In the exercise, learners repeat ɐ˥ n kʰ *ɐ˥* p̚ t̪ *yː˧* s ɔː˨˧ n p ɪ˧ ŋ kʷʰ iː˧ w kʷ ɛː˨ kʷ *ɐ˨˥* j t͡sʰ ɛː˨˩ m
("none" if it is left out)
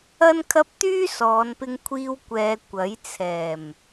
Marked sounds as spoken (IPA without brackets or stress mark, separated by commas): ɐ˥, yː˥, ɐ˨˥